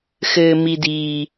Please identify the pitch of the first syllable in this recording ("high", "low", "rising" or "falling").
low